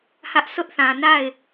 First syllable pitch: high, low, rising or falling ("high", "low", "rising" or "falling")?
high